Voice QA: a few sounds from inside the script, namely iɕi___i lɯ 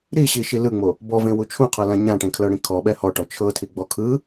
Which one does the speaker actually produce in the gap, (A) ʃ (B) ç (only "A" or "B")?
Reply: A